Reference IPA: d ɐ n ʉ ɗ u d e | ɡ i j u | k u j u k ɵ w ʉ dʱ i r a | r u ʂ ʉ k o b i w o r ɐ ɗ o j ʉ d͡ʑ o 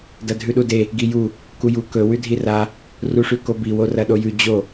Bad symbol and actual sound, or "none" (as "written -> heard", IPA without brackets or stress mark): n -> dʱ